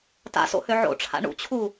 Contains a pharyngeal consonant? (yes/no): yes